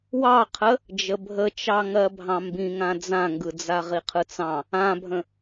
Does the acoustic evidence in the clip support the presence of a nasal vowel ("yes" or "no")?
yes